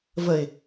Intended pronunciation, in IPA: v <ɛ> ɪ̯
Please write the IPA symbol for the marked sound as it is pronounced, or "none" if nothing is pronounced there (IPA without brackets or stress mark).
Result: ə